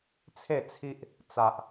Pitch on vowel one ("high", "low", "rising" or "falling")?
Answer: falling